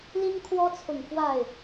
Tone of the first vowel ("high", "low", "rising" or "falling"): high